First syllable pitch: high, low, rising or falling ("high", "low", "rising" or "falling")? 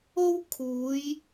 high